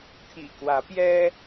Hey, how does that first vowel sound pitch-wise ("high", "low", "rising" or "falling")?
low